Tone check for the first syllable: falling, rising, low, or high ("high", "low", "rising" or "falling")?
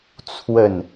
falling